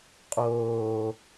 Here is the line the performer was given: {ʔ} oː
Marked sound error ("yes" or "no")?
yes